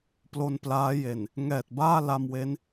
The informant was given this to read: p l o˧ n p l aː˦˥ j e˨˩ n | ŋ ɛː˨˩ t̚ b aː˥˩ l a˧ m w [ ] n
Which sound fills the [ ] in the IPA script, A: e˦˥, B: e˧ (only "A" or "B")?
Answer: A